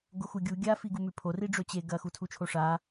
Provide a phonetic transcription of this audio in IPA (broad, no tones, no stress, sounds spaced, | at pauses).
ɡ o x u ɡʲ u ɡʲ a f i ɡ u m ʉ pʰ o r i ɖ͡ʐ ɵ t͡ɕ e ɡ ɐ x u tʰ u t͡ʃʰ o ʂ a